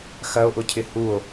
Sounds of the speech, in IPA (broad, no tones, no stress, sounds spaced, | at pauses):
x ɐ o̯ ʔ ʊ cʰ ɪ h u o̯